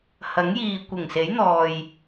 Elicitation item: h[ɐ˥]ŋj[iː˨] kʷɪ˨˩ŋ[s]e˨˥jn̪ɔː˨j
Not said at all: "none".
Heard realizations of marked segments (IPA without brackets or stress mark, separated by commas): ɐ˨˥, iː˨, s